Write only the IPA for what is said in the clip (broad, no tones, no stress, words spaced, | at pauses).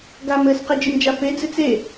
ɡam ɘs qed͡ʒɨmd͡ʒafe d͡zɨt͡se